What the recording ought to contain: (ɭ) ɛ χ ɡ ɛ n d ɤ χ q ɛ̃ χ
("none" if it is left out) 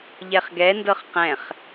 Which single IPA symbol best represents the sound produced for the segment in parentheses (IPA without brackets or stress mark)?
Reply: ʎ